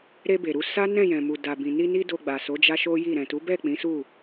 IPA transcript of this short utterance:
ɾ e˧ b e˨ ɾ u˧ s a˦ n ɛ̃˦˨ j ɛ̃˨ m u˨ d a˨ b ĩ˨ n i˧ n i˧ d o˧ ɡ͡b a˨ s o˨˦ d͡ʒ a˦ ʃ o˦ j i˦˨ ɾ ɛ̃˨ t u˨˦ b ɛ˦˨ k͡p ĩ˨˦ s u˦˨

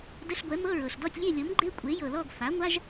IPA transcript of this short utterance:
d ə˧˥˧ ɬ ɡʷ ɛ˩˥ m ɤ˧˥˧ ɹ ɤ˩ ɬ d ɔ˥˨ tʲ lʲ e˥˨ lʲ ɤ˩˥ m ɡ͡ǃ e˧˥˧ kʷʼ e˩˥ j ɤ˩ l ɔ˥˨ ɡ f a˩˥ ŋʷ a˧˥˧ ʒ

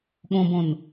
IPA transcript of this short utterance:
ɠ õ b õ n

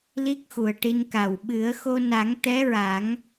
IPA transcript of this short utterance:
l i˦˥ k̚ x u˨˩ ə̯ ʈ i˧ n k a˨˩ w ɓ ɨ˨˩˦ ə̯ x o˧ n a˨˩˦ ŋ t̪ ɛ˧˥ ɹ a˨˩˦ ŋ

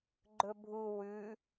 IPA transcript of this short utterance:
ɡ͡ǃ ɵ bʱ u w ʉ

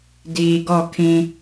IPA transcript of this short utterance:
d iː˨ ɡ ɔ˦˨ kʰ ĩ˦

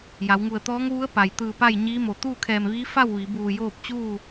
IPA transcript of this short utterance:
j a˩˧ w ŋ u˧˩ ə̯ t̪ ɔː˧˥ ŋ ʋ u˧˥ ə̯ p a˩ j t̪ ɯː˧˩ p a˥˨ j ɲ iː˧˥ m o˩ t̪ uː˥˨ kʰ ɛː˧˩ m ʋ iː˧˥ f a˥˨ w ʋ i˩˧ b uː˧˩ j oː˥˨ p̚ t͡ɕ uː˥˨

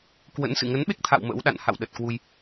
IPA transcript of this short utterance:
k w ə̰˧˥ n s ɨ̰˧˨ ŋ ə˨˦ n ɓ e˦˥ k̚ t̪ʰ a̰˧˨ w m ə̰˧˥ w ɗ a̰˧˨ n h a̰˧˨ w ɗ ə˨˩ t̚ k w u˧ j

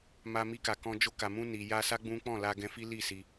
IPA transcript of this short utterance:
m a˧ m i˧ k a˨ k ɔ̃˧ d͡ʒ o˧ k a˨ m ũ˧ n i˨ j a˧ s a˦ ɡ͡b ũ˦ k͡p ɔ̃˦˨ l a˧ ɡ ɛ̃˧ f i˦ l i˦˨ s i˧

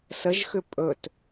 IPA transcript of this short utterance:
s ə ʒ x ʏ pʼ ɵ t

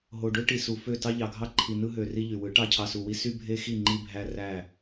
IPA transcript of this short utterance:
ɦ o˨ ɖ ø˦ ʈ i˨ s u˨ f ø˦˨ t ɑ˦ ʎ ɑ˨ ɡʱ ɑ˦ ǃʰ i˨ n ɯ˧ ɦ ø˨ r i˧ ʎ y˨ w ɯ˨˦ ʈ ɑ˧ cʰ ɑ˨ s u˨ w i˧ s y˦ bʱ e˦ x i˦˨ ŋ͡ǃ i˧ bʱ æ˧ r æ˦˨

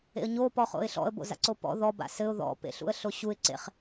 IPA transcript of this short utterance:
ḛ ə̯ ɲ o p ɔ χ o̰ ɪ̯ ɬ ɔ̰ ə̯ b o̰ z a̰ ǀ o p ɔ̰ ð ɔ b a̰ s ɘ ʊ̯ ð ɔ̰ p ḛ ɬ ṵ ə̯ ɬ o ɕ u ɪ̯ ǀ ḛ χ

